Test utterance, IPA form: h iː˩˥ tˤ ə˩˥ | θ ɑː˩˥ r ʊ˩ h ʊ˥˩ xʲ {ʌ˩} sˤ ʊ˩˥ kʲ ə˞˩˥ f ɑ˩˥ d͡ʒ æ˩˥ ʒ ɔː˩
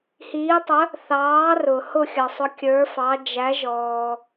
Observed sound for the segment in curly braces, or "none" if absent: ʌ˩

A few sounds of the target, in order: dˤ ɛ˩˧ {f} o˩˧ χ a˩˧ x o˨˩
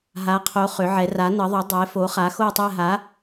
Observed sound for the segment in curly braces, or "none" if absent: f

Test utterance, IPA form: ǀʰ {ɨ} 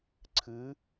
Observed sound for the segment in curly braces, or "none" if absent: ɨ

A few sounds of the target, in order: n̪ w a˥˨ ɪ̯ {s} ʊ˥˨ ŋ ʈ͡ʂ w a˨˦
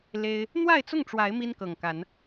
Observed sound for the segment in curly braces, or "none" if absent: t͡s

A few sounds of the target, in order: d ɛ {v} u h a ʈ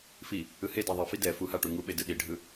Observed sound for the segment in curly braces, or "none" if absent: f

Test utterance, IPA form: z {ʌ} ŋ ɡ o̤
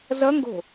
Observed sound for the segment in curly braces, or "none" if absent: ʌ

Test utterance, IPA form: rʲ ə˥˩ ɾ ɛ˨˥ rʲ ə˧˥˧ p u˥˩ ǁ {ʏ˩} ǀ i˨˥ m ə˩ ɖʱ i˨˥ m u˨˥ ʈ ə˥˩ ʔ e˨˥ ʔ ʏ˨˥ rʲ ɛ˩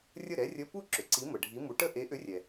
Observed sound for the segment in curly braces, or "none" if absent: ʏ˩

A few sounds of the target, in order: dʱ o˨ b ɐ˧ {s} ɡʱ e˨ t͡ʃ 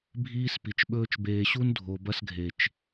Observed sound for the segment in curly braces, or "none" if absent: s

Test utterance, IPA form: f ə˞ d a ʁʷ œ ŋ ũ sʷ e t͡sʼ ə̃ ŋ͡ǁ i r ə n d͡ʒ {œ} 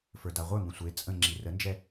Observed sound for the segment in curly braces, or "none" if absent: ɛ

